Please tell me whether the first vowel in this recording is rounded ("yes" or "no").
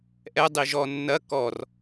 no